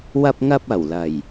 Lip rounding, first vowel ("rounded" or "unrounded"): unrounded